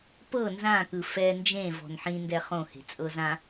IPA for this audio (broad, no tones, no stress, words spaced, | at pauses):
pɤ nzãkɯ fɛ nd͡ʒẽ vɔ̤nħĩ ndɛχõhe̤ t͡sʼɤzã